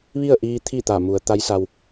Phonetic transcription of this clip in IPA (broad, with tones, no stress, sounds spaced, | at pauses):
ʋ i˥˨ ə̯ ʔ iː˧ t̪ʰ i˥˨ t̪ a˧˩ m u˩˧ ə̯ t̪ a˧˥ j s a˧ w